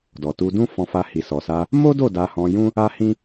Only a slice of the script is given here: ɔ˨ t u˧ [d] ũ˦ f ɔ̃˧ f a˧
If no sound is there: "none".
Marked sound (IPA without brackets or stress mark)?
d